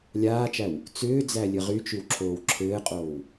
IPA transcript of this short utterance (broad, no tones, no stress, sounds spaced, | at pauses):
lʲ aː t͡ʃ æ w | t͡s ʏː d͡z æ lʲ ɘ ʁ y t͡ʃ y w ǁʰ oː w ǁʰ ɘː qʼ oː w